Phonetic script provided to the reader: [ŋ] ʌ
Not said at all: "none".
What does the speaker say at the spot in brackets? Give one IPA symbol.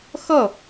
x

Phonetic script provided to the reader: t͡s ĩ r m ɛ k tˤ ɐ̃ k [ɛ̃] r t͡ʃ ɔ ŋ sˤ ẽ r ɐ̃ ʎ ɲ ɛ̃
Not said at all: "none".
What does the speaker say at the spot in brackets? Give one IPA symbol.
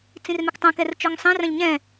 ɛ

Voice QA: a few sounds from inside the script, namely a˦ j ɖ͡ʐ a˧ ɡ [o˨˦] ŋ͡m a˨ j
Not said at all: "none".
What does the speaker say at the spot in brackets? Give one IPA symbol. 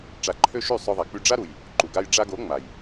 o˨˦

